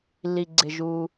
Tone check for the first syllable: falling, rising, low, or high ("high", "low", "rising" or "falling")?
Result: low